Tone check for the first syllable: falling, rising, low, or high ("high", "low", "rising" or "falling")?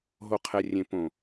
low